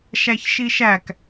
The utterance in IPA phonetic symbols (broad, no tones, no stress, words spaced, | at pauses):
ʃæçʃiʃæk